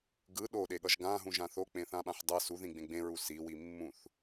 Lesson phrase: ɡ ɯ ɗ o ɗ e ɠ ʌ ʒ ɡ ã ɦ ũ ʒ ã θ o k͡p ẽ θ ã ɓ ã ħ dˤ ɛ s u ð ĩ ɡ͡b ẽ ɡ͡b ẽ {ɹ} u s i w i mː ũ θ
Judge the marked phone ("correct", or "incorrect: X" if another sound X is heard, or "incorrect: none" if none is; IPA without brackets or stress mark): correct